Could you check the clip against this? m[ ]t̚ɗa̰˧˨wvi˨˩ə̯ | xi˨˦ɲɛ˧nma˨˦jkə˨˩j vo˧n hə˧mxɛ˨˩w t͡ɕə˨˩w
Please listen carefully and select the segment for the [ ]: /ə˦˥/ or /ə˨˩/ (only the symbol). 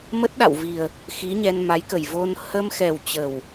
ə˦˥